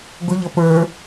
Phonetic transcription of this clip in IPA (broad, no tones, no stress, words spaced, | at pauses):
ɡʊʎʌ pə˞